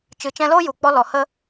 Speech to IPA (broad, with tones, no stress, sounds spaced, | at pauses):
t͡ʃ ɨ˨˦ t͡ʃ ɛ̃˧ l oː˦ j u˨ k͡p ɔ˧ l ɔ˨ h ə˦